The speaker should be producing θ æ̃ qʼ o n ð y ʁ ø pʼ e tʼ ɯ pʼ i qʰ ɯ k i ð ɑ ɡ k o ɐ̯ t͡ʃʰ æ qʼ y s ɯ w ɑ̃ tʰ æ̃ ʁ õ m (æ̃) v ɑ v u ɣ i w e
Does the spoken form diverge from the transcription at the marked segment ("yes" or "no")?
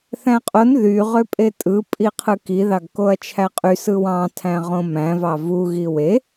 no